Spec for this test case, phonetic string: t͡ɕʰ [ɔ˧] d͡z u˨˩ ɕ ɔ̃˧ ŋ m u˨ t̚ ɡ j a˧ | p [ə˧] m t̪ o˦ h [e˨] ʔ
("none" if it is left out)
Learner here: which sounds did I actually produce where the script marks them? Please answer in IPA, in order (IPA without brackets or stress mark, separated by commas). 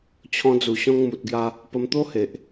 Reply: ɔ̃˧, ə˧, e˨